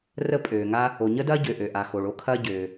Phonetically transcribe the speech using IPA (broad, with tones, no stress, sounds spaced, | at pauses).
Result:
r ə˥ pʼ øː˩ ŋ a˥ | o˩ ɲ ə˥ d ɐː˥ ɟ ø˩ ʔ ø˩ ʔ a˩ x o˩ ɭ o˥ kʰ ɐː˥ ɟ øː˩